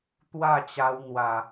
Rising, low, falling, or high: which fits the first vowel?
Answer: falling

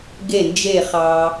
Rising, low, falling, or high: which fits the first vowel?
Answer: falling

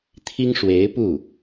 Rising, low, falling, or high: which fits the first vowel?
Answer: high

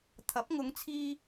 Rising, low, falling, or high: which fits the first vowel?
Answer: rising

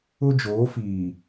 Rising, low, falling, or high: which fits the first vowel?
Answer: high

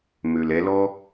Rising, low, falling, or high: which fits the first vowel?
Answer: low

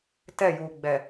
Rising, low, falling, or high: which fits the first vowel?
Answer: falling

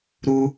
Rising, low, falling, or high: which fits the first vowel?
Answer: high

